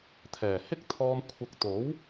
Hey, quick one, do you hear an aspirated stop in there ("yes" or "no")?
yes